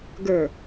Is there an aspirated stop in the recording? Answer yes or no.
no